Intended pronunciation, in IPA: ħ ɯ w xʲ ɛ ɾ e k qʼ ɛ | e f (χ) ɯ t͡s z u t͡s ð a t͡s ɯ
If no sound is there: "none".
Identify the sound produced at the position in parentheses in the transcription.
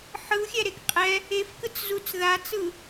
k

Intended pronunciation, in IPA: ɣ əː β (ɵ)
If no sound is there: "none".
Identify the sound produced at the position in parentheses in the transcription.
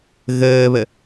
ə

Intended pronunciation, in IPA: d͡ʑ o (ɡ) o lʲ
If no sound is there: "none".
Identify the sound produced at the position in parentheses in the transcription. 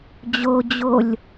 d͡ʑ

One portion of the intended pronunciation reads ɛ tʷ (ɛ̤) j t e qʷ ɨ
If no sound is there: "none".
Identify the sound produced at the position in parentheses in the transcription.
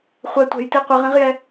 ɛ̤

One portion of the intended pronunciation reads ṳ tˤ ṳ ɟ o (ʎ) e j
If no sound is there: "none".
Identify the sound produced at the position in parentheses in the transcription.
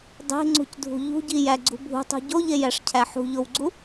ʎ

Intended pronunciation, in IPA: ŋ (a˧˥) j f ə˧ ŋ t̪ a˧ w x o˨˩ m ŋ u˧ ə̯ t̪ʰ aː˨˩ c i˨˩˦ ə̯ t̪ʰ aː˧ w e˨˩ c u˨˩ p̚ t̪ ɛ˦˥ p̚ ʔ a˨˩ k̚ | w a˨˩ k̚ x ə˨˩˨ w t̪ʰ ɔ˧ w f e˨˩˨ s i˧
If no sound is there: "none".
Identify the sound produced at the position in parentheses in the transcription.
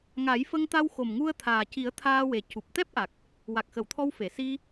a˨˩˦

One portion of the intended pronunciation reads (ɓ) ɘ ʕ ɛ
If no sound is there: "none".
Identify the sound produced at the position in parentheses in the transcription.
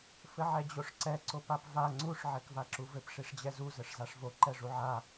f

